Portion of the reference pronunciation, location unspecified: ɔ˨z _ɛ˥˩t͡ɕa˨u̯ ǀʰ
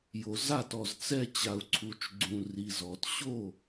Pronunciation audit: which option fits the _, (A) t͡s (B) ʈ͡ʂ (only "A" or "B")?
A